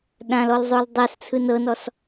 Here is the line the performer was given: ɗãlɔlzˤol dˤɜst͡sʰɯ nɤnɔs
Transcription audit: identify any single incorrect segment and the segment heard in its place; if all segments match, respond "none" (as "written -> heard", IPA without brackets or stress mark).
none